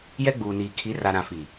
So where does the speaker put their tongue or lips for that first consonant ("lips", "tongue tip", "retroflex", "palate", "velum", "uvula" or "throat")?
palate